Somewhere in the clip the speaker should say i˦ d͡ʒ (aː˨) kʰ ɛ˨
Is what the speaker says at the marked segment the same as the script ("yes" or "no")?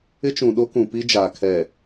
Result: yes